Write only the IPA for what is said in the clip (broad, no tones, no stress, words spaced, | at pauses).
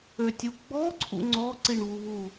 øtʲuɡ͡bɔ ǀʰṵŋ͡ǀɔ ǀiɳβuβu